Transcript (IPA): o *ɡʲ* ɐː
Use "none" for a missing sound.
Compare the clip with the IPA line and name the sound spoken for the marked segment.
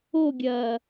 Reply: ɡʲ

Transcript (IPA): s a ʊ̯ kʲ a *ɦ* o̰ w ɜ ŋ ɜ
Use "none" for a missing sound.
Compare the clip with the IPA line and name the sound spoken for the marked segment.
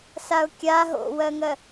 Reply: ɦ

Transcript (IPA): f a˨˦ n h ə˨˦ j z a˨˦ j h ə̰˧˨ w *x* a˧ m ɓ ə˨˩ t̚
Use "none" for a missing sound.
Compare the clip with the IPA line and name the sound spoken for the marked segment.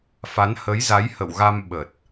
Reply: ɣ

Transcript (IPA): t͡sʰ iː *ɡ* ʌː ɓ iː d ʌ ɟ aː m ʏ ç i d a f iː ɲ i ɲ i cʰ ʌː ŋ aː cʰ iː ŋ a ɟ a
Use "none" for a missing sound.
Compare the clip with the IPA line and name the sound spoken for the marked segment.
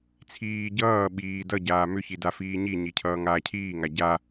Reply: ɟ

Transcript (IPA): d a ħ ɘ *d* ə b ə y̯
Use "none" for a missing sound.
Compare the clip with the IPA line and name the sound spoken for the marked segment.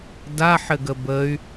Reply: ɡ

